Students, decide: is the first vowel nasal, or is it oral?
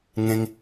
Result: nasal